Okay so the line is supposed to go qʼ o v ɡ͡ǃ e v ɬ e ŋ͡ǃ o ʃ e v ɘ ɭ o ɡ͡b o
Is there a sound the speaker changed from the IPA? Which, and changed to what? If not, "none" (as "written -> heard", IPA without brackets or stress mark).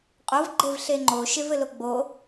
ɭ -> l